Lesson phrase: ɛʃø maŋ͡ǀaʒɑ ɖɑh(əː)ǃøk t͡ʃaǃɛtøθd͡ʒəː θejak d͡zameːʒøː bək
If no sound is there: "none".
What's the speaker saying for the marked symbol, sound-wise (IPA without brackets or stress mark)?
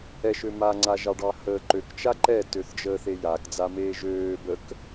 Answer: əː